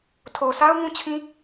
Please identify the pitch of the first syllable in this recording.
low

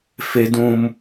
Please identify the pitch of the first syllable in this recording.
high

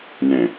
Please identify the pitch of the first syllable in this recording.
low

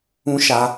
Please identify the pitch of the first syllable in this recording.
high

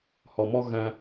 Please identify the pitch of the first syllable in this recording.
low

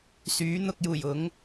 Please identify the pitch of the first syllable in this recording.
rising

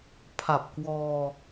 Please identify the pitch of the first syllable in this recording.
low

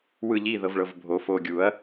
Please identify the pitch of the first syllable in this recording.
falling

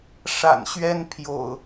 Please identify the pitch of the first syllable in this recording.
low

